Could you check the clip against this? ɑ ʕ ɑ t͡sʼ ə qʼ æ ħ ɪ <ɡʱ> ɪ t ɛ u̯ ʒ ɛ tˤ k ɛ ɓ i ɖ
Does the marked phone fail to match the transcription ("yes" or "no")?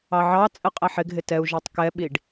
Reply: no